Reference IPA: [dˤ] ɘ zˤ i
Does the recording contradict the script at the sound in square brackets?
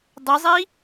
no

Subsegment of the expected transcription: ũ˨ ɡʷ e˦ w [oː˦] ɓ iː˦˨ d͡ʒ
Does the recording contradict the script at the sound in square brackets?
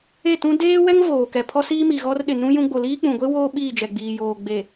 no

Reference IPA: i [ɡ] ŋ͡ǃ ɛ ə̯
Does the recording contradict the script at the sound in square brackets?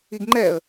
no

